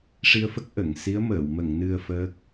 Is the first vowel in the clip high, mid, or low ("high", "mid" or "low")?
high